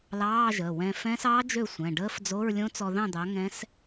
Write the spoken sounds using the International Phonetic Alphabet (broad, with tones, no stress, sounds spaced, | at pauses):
l ɑː˧˥˧ ʒ əː˩˧˩ w ɛ̃˧ f ɛ̃˦˥ s ɑː˦˥ d͡ʒ ø˥˨ sʷ ɛ̃˩˧˩ ɖ əː˦˥ f d͡z o˧˥˧ ɹ lʲ õ˦˥ t͡s ɔ˧ ð ɑ̃˥˨ d̪ ɑ˨˥ ŋ ɛ̃˦˥ s